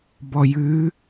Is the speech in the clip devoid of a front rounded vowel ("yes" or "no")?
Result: yes